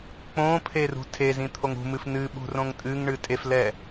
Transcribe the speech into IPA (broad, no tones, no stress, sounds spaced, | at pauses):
k͡p õ pʰ e r ṳ tʰ e z ĩ t̪ʰ o ŋ ṳ m ɨ f n ɨ ɓ ṳ r õ ŋ tʼ ɨ ŋ ɳ ɨ tʼ e f l ɛ